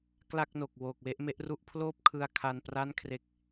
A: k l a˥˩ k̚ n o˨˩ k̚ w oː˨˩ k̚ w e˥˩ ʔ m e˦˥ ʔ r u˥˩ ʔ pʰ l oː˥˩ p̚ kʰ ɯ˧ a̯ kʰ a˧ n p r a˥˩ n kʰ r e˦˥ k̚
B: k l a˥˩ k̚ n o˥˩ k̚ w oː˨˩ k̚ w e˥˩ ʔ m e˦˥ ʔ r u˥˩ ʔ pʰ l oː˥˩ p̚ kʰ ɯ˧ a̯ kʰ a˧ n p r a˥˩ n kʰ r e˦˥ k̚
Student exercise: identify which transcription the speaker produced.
A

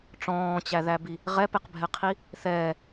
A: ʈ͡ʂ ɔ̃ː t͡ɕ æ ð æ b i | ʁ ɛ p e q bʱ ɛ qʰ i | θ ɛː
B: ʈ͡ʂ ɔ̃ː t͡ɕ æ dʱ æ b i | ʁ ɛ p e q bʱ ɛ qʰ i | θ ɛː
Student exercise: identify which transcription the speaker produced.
A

